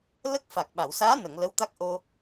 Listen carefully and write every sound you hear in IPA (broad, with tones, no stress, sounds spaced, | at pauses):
l ə˦˥ k̚ f a˨˩ k̚ ɓ a˨˩˨ w s aː˧˥ n ə˨˩˨ ŋ l ə˧˥ w t̪ a˦˥ k̚ ʔ o˧